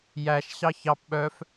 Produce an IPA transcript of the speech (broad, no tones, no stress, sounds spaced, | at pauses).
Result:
j æ ʃ ɕ ɑ ç ɑ p ɓ œ f